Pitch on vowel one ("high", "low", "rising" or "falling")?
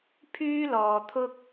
high